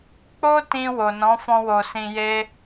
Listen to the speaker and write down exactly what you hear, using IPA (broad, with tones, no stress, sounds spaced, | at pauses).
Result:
k͡p o˦ t ĩ˧ w o˨ n ɔ̃˨˦ f ɔ̃˧ w o˨ s ĩ˨ j e˧